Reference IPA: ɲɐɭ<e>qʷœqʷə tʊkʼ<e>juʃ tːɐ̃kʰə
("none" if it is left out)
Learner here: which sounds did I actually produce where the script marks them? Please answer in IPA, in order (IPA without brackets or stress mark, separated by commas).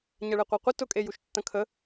e, e